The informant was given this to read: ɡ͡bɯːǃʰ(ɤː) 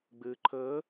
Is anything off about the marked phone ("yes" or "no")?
no